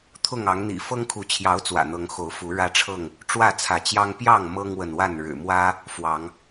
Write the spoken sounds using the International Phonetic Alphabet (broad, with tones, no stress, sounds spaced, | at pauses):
t̪ʰ ʊ˥˨ ŋ ɑ˨˦ ŋ n̪ ḭ˨˩ f ɤ˦ ŋ kʰ u˨˦ t͡ɕʰ j ɑ˨˦ ʊ̯ t͡s w ä̰˨˩ n̪ ɤ˨˦ ŋ x o˨˦ ʊ̯ f u˨˦ ɻ ä˦ ʈ͡ʂʰ ɤ˥˨ ŋ | ʈ͡ʂ w ä˥˨ t͡sʰ ä˨˦ t͡ɕ j ɑ˦ ŋ p j ɑ˥˨ ŋ m ɤ˦ ŋ w ə˨ n w a˥˨ n ɻ ɻ̩˨˩ m w ä˦ | f w ɑ˨˦ ŋ